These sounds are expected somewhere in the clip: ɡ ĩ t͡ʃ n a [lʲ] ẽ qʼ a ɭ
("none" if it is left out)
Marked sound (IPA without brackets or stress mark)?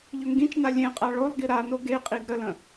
lʲ